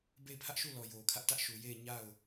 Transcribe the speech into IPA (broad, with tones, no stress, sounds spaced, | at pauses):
b e˦˨ ɪ̯ pʰ ä˦ ʔ ʃ u˦˨ l ɔ˨ j o˨ kʰ ä˦ ʔ t ä˦ ʔ ʃ u˨ j e˦˨ ɪ̯ ɲ a˦˨ ʊ̯